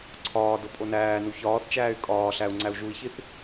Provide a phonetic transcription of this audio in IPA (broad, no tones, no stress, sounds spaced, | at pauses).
ǀʰ ɒː d o pʼ o n æː n u ç ɒː θ t͡ʃ æː y̯ kʼ ɒː ɬ æ u̯ ŋ͡ǀ æ u̯ ʒ u i̯ ç i θ